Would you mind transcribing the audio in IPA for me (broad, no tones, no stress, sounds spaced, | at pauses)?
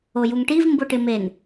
o j u ŋ ʈ i v m b ʊ ʈ ɪ m e n